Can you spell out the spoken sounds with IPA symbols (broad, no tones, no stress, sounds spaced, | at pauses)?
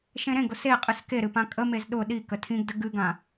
ʃ ẽ ɾ ẽ ɡ ʊ s e qʼ ɨ s k e ɾ ɨ p ã kʼ ə m e z ɗ ʊ ɗ i k ə tʰ ĩ ɡ d ə ɡ ɨ ɡ ã